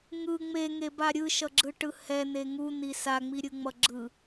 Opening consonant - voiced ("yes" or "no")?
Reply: yes